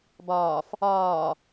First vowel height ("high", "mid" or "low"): low